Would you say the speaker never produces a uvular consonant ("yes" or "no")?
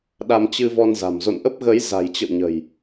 yes